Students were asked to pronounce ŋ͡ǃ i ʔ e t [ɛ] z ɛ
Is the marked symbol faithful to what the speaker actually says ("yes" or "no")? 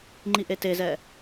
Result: no